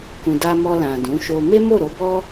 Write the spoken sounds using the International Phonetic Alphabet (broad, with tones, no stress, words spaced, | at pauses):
kũ˨da˧mɔ˧ lã˨dũ˨˦ʃo˧ me˦mo˦˨ɾo˨˦bɔ˦